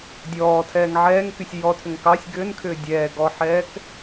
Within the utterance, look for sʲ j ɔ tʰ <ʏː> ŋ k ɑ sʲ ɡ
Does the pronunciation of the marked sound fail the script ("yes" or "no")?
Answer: yes